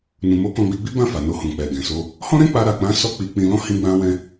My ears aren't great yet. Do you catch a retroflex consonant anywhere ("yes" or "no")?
no